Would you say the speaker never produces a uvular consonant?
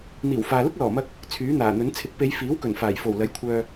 yes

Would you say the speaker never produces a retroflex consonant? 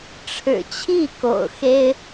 no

